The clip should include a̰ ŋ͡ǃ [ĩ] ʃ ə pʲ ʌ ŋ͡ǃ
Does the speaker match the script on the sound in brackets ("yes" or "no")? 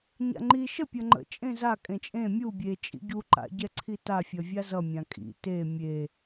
no